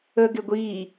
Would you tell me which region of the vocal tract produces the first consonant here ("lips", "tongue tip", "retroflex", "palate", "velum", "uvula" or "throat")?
velum